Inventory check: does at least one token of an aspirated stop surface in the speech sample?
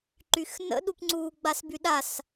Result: no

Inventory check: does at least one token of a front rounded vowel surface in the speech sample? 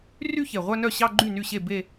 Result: yes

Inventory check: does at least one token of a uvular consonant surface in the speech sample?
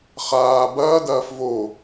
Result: yes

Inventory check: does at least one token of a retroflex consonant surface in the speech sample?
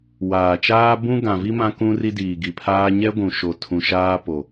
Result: no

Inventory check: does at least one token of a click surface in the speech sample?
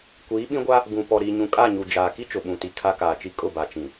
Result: no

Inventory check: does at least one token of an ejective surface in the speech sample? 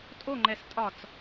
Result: yes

